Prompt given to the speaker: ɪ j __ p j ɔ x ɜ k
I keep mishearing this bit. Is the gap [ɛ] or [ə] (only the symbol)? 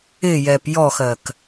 ɛ